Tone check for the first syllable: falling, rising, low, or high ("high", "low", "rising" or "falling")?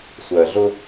low